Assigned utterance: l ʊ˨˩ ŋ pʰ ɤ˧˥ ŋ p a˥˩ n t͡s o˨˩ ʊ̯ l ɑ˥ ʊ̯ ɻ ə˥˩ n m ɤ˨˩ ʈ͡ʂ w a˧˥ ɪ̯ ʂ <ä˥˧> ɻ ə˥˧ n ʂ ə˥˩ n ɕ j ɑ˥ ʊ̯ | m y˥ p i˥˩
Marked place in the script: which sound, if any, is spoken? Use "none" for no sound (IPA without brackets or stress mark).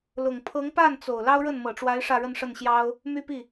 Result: ä˥˧